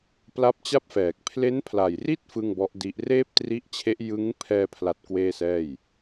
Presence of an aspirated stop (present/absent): present